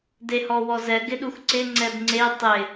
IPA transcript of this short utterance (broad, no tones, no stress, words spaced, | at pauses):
dehɔwɔzɛ ɡɪɗuxǀɪ ŋ͡ǀɛbŋ͡ǀe tˤɪ